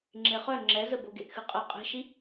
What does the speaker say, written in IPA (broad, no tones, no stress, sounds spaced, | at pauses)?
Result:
ŋ͡ǁ e χ œ ŋ͡ǁ ɛ z ə b o ɡ e ʔ x ɨ qʼ ə qʼ e̤ ʃ i